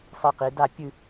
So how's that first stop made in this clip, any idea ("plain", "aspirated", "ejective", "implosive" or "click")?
plain